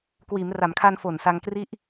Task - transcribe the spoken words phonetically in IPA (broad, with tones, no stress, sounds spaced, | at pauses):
k w iː˩˦ m r a˩˦ m kʰ aː˧ n f o˨˩ n s a˧ ŋ k r i˥˩ ʔ